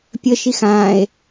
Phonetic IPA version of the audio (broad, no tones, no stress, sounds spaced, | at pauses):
pʲ ə ʃ i x ã e̯